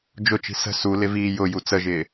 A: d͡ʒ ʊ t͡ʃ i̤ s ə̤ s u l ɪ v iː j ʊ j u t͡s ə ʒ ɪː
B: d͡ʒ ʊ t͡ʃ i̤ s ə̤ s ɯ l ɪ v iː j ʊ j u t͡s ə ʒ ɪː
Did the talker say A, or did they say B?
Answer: A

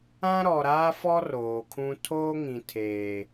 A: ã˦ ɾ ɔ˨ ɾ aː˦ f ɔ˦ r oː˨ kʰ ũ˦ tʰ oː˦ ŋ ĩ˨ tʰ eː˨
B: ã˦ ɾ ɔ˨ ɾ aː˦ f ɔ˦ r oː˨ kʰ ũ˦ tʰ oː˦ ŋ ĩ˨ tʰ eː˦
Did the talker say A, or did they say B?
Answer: A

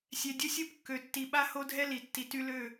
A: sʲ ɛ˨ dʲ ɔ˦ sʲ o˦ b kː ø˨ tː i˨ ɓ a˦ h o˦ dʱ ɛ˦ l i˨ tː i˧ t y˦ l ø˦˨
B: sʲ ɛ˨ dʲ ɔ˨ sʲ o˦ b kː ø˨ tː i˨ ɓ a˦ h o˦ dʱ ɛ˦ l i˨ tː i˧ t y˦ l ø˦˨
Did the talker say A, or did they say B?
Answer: A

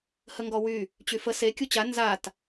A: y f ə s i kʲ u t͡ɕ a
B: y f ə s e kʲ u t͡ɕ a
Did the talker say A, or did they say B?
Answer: B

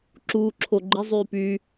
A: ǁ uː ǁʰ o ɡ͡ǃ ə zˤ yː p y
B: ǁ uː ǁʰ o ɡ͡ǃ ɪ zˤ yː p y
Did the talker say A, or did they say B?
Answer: B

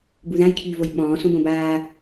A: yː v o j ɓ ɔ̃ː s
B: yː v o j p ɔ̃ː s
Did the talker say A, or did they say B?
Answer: A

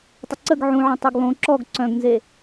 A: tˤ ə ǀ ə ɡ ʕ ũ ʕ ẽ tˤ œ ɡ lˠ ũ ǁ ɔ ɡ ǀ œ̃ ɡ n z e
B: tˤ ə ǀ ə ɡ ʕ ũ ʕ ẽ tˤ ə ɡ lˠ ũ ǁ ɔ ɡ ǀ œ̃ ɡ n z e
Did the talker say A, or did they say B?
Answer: A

